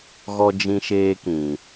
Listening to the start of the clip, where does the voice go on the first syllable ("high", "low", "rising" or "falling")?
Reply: high